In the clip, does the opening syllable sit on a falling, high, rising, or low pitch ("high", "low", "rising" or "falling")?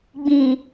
low